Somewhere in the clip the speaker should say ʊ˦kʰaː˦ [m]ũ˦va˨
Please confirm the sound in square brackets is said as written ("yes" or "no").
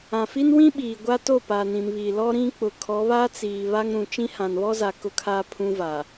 no